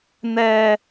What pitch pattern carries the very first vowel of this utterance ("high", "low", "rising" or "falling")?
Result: high